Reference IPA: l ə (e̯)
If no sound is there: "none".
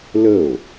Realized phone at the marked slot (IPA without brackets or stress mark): o̯